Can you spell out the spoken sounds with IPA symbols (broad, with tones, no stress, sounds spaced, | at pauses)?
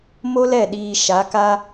m o˦ l ɛ˦˨ ɗ iː˧ ʃ a˨˦ k a˦